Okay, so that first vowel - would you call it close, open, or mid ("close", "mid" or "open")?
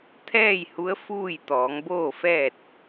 mid